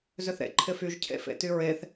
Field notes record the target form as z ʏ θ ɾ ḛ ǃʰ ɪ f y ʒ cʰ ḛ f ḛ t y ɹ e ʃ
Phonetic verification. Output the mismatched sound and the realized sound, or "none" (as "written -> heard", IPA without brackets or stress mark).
ʃ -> θ